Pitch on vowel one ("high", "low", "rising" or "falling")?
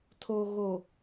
low